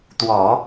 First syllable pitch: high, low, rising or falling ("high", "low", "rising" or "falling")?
low